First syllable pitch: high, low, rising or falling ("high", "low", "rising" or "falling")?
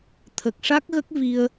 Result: low